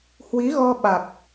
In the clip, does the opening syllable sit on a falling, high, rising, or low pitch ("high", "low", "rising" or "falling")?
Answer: rising